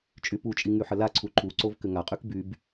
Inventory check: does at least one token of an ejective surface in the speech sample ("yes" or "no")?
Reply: yes